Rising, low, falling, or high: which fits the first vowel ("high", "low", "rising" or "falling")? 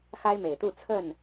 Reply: high